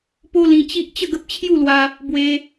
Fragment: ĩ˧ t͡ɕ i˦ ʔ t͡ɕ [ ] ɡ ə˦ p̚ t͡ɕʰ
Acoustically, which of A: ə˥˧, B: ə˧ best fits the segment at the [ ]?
A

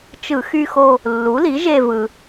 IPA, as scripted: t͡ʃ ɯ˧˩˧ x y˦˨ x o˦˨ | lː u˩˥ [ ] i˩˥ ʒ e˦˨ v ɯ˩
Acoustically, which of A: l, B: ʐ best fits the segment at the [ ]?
A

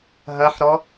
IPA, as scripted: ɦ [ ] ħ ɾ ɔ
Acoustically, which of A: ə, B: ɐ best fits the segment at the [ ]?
B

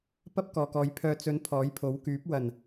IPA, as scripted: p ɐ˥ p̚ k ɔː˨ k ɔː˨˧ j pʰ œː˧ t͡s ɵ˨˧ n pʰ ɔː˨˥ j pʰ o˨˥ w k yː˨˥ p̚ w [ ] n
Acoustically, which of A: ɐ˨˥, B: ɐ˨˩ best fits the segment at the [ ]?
B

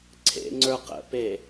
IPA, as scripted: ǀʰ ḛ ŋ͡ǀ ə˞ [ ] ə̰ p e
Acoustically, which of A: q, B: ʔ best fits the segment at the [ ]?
A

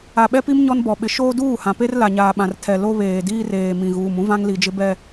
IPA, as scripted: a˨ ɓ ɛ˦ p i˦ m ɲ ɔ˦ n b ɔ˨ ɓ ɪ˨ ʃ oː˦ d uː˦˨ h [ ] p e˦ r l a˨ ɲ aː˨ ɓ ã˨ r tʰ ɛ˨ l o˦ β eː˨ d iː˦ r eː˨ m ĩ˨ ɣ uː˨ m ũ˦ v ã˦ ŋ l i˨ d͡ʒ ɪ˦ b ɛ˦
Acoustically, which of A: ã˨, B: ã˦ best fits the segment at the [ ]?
A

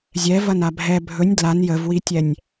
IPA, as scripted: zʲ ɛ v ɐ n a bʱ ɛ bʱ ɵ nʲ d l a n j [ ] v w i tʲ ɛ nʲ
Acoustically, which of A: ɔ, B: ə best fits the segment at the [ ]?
B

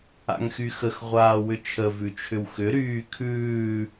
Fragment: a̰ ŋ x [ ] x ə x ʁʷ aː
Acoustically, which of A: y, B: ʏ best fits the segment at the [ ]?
A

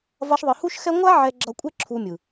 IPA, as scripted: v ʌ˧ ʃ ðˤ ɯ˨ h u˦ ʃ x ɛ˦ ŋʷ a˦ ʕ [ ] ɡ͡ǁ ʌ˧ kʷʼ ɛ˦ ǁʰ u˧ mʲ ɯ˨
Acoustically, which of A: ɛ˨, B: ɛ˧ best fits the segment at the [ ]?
B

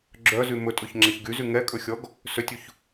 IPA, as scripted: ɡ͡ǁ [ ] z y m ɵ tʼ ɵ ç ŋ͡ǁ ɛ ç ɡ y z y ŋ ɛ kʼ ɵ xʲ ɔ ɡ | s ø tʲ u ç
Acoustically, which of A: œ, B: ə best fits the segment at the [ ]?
A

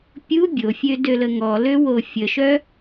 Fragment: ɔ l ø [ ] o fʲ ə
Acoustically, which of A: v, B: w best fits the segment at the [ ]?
B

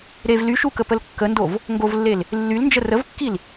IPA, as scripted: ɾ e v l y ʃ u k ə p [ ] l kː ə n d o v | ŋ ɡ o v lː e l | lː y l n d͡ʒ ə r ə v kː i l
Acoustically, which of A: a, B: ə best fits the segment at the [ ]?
B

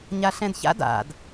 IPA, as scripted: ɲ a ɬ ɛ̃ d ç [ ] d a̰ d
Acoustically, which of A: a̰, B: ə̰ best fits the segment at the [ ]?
A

